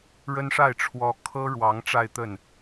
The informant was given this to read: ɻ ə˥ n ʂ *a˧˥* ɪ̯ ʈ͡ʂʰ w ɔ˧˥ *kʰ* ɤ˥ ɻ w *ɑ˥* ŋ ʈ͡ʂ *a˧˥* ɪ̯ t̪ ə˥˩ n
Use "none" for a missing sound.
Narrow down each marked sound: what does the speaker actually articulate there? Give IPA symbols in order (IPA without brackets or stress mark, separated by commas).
a˥˩, kʰ, ɑ˧˥, a˥˧